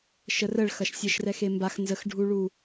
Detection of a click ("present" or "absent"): absent